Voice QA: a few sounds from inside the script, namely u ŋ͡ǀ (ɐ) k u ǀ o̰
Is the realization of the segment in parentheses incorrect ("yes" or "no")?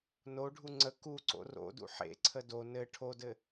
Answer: yes